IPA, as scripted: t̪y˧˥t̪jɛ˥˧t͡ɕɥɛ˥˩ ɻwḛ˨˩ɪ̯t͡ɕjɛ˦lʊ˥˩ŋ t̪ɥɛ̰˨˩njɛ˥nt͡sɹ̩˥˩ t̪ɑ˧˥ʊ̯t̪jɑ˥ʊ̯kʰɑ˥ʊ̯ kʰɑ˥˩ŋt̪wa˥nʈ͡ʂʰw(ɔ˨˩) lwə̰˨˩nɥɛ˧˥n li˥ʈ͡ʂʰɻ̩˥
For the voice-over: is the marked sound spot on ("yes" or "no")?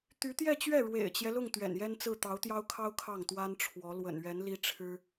no